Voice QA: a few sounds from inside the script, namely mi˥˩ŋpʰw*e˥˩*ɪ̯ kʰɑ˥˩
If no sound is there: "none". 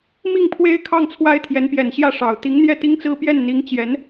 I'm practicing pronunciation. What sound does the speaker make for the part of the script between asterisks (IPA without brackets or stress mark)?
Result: e˥